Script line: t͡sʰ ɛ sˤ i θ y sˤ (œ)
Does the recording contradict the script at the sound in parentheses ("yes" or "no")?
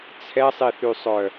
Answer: no